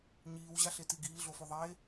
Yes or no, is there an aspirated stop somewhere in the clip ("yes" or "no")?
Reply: no